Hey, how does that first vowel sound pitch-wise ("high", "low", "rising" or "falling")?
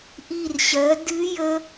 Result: falling